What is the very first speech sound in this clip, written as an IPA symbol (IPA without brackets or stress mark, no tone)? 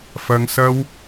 f